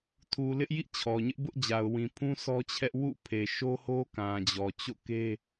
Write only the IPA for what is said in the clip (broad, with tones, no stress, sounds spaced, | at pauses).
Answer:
tʰ u˨ l ɪ˦ ʔ j ḭ˦˨ t͡ɕʰ ɔ˨ ɲ ɪ˦ ʔ b ʊ˦ ʔ d͡ʑ a˨ ʊ̯ w ĩ˨ pʰ ũ˦ s ɔ˦ t͡ɕʰ ɛ˦ ʔ w ṵ˦˨ pʰ e˨ ʃ o˦ h o˦ k ã˨ d͡ʑ ɔ˨ t͡ɕ o̰˦˨ k e˦